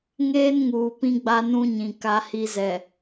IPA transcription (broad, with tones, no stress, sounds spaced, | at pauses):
ŋ eː˦ n ŋ uː˨ p ĩ˦ ɡ͡b a˦ n ũ˦ ɲ ĩ˨ k a˦ h i˦ z ɛ˨